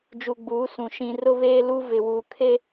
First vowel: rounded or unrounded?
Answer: rounded